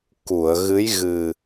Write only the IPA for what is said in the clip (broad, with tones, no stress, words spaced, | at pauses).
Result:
ku˨˩˨ə̯ɣɨ˧˥j ɣɨ˨˩